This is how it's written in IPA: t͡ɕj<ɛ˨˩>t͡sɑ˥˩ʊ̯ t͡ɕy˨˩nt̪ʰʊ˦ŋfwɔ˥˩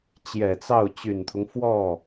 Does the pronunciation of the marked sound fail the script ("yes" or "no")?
no